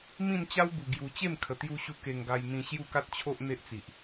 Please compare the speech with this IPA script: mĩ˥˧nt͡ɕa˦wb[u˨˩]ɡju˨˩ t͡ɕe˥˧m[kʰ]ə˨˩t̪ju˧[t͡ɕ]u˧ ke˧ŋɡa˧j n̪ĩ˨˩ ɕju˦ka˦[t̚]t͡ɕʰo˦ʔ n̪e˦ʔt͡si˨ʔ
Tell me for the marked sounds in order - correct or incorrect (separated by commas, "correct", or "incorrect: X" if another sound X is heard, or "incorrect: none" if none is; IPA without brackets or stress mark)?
correct, correct, incorrect: ɕ, correct